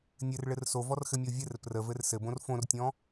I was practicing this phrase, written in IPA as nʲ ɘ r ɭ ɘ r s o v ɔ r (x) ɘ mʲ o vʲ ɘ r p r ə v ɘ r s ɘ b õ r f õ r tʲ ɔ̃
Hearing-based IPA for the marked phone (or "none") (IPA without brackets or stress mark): x